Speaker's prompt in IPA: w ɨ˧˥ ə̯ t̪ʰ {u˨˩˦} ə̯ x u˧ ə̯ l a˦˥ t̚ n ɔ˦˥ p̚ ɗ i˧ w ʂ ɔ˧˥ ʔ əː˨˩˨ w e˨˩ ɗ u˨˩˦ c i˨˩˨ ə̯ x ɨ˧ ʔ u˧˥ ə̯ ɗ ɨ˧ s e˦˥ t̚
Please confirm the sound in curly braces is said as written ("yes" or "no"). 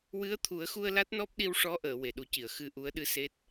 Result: yes